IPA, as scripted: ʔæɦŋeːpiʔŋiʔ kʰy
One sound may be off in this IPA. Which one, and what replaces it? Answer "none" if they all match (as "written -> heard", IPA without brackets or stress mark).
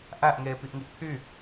ɦ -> ʔ